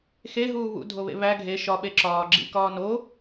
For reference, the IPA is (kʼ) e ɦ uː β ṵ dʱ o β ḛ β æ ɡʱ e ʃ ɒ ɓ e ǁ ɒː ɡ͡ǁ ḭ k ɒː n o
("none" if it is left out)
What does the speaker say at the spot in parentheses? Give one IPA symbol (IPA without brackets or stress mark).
x